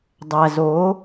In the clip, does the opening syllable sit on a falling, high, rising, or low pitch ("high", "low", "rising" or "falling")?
low